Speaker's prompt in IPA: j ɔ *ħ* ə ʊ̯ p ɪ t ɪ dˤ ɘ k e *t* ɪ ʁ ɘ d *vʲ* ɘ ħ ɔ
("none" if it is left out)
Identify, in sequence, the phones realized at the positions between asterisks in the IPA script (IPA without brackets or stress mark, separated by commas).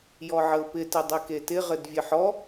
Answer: ʕ, t, vʲ